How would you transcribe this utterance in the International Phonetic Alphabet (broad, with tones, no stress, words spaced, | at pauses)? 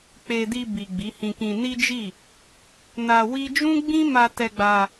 k͡pe˧di˧ bi˨ɡ͡bi˨˦hĩ˧kĩ˧ ni˦d͡ʒi˦˨ | na˧ wi˦ d͡ʒũ˦ɡ͡bĩ˦ma˧ tɛ˧ɡ͡ba˧